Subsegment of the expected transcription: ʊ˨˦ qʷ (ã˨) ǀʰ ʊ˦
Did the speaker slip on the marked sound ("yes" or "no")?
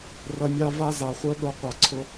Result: yes